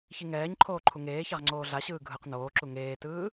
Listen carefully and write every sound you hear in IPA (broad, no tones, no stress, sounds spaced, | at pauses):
ç i ŋ ɛː ɲ ǃʰ oː ǃʰ u ŋ eː ç a ʁ ŋ͡ǀ oː ɮ a ɕ ɯː ɡʱ ɯ q n oː ǁ u ŋ eː t ɯː